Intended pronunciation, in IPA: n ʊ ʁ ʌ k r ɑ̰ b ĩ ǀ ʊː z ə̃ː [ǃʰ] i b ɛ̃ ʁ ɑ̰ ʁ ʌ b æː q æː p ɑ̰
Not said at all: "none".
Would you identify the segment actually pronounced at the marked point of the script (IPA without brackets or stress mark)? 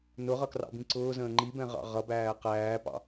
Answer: ŋ͡ǃ